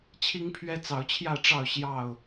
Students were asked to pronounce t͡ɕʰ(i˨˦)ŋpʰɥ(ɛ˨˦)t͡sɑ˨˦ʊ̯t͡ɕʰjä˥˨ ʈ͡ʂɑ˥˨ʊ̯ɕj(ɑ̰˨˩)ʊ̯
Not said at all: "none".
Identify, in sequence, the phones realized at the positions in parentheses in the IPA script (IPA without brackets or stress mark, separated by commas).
i˦, ɛ˦, ɑ˥˨